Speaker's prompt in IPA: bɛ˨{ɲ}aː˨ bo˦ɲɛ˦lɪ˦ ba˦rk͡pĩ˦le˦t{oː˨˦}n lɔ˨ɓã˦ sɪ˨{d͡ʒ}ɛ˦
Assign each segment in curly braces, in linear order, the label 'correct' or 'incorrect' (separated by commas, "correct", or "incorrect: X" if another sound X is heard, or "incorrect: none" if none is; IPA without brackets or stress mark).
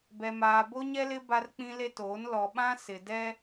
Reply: incorrect: m, correct, incorrect: d